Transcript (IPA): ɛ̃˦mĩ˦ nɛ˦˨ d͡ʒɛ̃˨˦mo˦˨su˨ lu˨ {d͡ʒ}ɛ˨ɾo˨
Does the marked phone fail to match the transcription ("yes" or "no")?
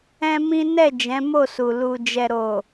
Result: no